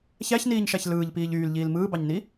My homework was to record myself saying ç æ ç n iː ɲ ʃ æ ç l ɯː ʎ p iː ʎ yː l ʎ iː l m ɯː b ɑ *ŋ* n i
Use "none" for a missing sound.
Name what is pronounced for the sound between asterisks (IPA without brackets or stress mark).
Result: ɲ